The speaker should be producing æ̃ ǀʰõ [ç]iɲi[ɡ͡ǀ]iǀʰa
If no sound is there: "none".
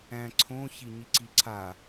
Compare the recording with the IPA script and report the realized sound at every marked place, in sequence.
ç, ǀ

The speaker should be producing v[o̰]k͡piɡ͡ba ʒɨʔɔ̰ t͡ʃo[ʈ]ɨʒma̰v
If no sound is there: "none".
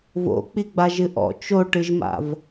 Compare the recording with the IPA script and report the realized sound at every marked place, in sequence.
o̰, ʈ

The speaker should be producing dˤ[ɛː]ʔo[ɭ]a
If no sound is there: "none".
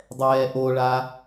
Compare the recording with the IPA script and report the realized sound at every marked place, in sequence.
ɛː, ɭ

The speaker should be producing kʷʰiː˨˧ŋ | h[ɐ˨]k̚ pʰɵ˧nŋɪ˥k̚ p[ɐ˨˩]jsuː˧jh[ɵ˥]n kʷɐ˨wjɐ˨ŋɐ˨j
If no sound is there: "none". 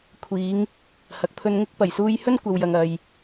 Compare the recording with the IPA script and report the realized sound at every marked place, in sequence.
ɐ˨, ɐ˨˩, ɵ˥

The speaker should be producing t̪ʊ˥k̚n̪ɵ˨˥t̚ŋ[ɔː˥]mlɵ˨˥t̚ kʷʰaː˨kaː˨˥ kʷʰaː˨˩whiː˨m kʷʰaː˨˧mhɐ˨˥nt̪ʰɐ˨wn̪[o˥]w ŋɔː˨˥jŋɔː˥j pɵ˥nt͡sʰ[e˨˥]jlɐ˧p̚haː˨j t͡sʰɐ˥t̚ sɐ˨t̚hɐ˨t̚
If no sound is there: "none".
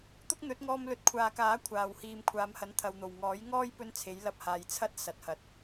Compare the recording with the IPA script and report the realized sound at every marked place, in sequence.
ɔː˧, o˨˩, e˨˥

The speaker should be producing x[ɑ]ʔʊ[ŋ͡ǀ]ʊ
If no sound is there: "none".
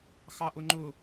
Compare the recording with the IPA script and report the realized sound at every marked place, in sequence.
ɑ, ŋ͡ǃ

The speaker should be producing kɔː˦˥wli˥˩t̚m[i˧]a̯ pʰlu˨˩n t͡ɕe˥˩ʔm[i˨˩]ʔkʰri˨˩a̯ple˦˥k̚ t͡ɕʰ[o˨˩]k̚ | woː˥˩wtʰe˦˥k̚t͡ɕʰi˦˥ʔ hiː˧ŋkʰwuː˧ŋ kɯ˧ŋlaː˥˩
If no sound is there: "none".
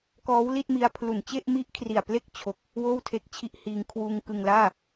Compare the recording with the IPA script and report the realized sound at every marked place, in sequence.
i˧, i˦˥, o˨˩

